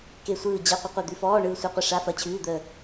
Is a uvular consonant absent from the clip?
no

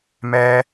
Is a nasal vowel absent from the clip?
yes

